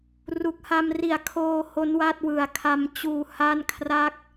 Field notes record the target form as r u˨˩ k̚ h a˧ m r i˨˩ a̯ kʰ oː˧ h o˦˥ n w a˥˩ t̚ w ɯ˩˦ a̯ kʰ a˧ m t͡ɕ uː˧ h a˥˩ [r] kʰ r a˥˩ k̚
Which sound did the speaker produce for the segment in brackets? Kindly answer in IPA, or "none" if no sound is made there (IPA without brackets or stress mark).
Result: n